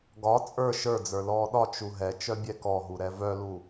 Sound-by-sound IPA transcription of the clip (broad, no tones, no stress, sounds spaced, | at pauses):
ɡ ɒ t͡sʼ ə˞ ʃ ə˞ d͡z ə˞ l ɔː ɗ ɒ t͡ʃ u ɦ ɛ t͡ʃ œ bʲ ɛ k ɔ ɦ u ɾ ɛ v œ l u